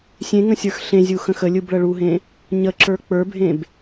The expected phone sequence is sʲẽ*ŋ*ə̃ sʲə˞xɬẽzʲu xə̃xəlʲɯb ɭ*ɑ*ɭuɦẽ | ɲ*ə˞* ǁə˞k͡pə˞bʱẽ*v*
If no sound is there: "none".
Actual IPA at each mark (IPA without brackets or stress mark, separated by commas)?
ŋ, ə, ə, b